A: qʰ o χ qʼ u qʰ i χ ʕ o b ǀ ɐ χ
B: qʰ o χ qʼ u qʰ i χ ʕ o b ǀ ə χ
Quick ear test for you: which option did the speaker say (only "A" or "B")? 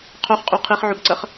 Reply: A